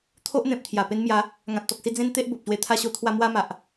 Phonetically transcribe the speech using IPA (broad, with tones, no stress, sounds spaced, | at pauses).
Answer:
t̪ʰ o˦ ʔ n̪ ẽ˨ p̚ t̪ʰ j a˨˩ p e˧ n m j a˨˦ | ŋ ã˨ t̚ t̪ ɔ˨ k̚ s i˧ d͡z ẽ˦ n t̪ e˦ ʔ b o˨ p̚ ɕ w e˧ t̪ʰ a˥˧ ɕ o˦ t̪ʰ w a˧ m w a˦ m a˨ ʔ